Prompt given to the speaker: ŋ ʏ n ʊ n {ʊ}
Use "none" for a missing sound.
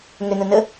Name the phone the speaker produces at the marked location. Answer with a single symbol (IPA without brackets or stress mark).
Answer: ə